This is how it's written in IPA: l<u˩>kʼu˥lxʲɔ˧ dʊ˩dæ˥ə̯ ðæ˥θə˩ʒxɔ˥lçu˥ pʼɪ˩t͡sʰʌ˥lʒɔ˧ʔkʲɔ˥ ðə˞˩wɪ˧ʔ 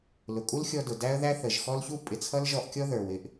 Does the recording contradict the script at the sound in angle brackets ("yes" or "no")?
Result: yes